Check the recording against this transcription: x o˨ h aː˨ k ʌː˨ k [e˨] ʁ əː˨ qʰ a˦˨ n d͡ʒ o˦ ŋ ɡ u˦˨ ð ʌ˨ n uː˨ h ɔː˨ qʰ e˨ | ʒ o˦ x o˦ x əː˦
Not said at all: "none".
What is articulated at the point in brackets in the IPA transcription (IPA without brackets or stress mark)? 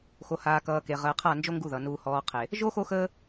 e˨